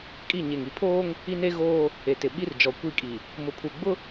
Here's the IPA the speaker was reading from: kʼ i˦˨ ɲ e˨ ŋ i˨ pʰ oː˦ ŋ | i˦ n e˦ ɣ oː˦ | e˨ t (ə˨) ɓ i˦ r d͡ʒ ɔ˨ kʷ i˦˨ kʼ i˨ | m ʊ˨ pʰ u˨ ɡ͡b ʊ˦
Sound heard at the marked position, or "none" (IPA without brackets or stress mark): ɪ˨